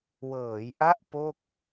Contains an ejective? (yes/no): no